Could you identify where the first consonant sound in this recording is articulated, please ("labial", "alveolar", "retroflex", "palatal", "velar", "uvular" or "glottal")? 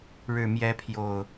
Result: retroflex